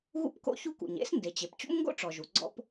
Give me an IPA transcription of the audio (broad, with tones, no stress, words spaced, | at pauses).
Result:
ɣṵ˥pko̰˥çu˥kṵ˩ɲ ḛ˥s nde˩t͡ɕe˩p t͡ɕṵ˥mŋɡo̰˥ ʈ͡ʂɔ˩ʒu˩ ɡ͡ǀɔ̰˥p